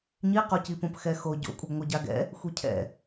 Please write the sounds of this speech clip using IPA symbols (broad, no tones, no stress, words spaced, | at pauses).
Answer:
ɲiqocipõp xɛxo ɟo̰kʷʼəɡŋʷɯ ɟaɡɛ̰ | xʷicʰɛ̰